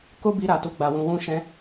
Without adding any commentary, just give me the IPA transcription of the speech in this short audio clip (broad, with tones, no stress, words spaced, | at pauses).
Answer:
ko˦ bi˧ɾa˨tu˨˦ ɡ͡ba˧wũ˧wũ˦ ʃɛ̃˧